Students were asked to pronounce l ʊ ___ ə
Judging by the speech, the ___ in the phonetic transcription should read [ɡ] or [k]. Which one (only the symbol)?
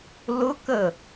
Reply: k